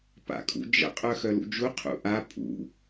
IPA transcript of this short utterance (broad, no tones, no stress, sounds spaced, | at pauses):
p a̰ kʼ ṵ d͡ʒ ə̰ qʼ œ x œ l ṵ d͡ʒ u qʰ ṵ ʔ a pʼ ṵ